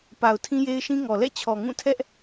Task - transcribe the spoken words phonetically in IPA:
p a˨ ʊ̯ tʰ ĩ˦ j e˦ ɪ̯ ʃ ĩ˦ ŋ ɔ˨ l ɛ̰˦˨ t͡ɕʰ ɔ˨ ŋ ũ˦˨ tʰ ɛ˦ ʔ

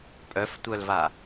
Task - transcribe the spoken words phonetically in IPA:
pʼ œ f tʷ œ l v a

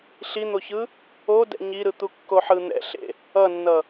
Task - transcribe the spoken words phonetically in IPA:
ɬ i n̪ o ç ɯ | o d ɛ̰ ɲ i ɾ ɯ t̪ u kː o ħ ɯ n̪ ɛ̰ ɬ ḛ | ʌ nː ʌ

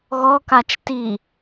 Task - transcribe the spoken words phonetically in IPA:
ɣ ɔ k a t͡ʃ t i

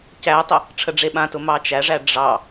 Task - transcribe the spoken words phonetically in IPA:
c æ tˤ ə | ʈ͡ʂʰ ə ɖ͡ʐ e ɓ ã t ʊ m ɑ t͡ʃ æ ʐ æ ɖ͡ʐ ɑ

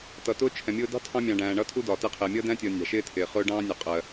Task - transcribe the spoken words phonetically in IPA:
t ʌ˨ t ʊː˦ t͡ʃʰ ɛ̃˨ mʲ ʊː˦ d ɑ̤˦ tʰ ɑ̃˦ mʲ ɑ̃ː˨ ɖ æ̃ː˨ ɳ ʌː˦ tʰ u˦ d ɒː˨ t ɪː˦ qʰ ɪː˨ mʲ ʌː˦ d æ̃˦ tʲ ʌː˨ nʲ ɑ̤˨ ʃ ɪː˦ tʰ ɪː˨ χ ʊː˦ ɖ ɑ̃ː˦ nʲ ʌ˨ qʼ ɜ˨

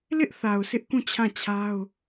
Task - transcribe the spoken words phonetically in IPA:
l ɪ˦ ʔ θ a˨ ʊ̯ sʰ ɪ˦ ʔ k ũ˦˨ t͡ɕʰ ã˦˨ t͡ɕʰ a˦ ʊ̯

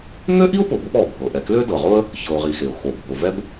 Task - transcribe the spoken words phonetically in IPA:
ŋ ø˥ ʔ i˥ ʊ̯ p ʊ˨ b ʊ˦ p ɔ˩ bʱ ɤ˩ ʔ ɛ˨ k l ø˥ d ɤ˩ ʁ ʊ˥ ə̯ | ç ɤ˨ ʊ̯ ʁ i˨ x e˩ ʊ̯ x o˩ bʱ ʊ˩ v ɛ˥ b

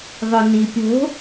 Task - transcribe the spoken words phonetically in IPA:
ðˤ ɵ n i pʲ o̤

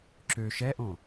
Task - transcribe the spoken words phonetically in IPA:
ǁ ø ʃ ɛ ʔ õ

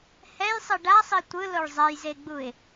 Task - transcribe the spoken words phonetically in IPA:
h ɛ j sˤ ɯ ɖ a sˤ i tʷ ɯ l o ɭ zˤ ɛ j z e ɡ͡b u ɪ̯

